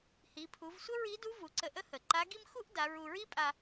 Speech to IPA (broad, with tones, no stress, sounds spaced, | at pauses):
h i˩˧ pʰ u˩˧ v sʷ ə˥ ɹ i˧˥ d u˧˥ v u˩˧ ǀ ə˧ ʔ ə˥ h ə˩ ǃ a˧˥ ɡ i˥ m x u˥ ʔ d a˩˧ ɹ u˧ ɹ i˥ pʼ a˧